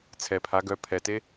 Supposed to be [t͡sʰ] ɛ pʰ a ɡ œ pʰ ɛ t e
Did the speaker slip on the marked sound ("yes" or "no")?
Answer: no